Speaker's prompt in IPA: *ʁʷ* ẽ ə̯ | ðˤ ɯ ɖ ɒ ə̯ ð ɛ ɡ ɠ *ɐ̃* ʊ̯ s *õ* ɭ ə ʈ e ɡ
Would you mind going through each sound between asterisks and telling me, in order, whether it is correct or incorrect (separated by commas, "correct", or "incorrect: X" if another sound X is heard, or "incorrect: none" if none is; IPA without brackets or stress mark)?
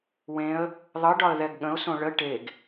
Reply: incorrect: w, incorrect: ə̃, correct